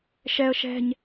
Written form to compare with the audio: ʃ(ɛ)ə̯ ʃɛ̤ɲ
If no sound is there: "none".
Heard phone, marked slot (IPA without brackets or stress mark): ɛ